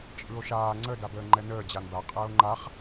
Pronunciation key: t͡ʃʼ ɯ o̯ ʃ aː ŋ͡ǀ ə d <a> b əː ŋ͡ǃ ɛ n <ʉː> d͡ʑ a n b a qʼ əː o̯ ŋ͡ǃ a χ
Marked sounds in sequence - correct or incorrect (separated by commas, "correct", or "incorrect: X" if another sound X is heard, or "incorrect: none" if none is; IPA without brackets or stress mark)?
correct, incorrect: əː